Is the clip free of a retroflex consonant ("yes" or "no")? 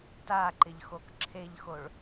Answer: no